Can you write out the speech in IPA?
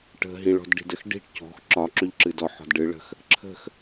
ʈ ə̤ ɦ ĩ ɭ ɔ̤ d ɖ i̤ d ə x ɖ i̤ ʈ c ɔ̤ x ǁ ɒ ǁ ø ʎ ǁ ɨ d ɔ ħ ɔ̤ d ɖ ɨ ɭ ə̤ x | ǁʰ ə̤ x

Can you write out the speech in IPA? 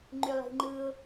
ŋ͡ǃ y lˠ i̤ ŋ͡ǃ ɯ ʊ̯

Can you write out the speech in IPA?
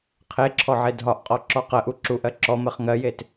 qʰ e ǁʰ ɔ ʕ e dʱ ɒ ʔ qʼ ɔ ǁ ɔ q ɜ ʔ u ǁ u ʔ ɜ ǁ ɔ m ɜ χ ŋ ɜ j e t

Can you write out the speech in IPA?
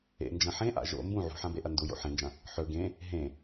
ḛ n d͡ʒ ɐ̃ ħ ẽ ʔ a̰ ʒ o̰ m b ũ ʕ ṳ ħ ã b e ʔ ɐ n d u j o̰ ħ ẽ n d͡ʒ ɐ̃ | ħ ɵ ɡ ẽ | ɦ ẽ

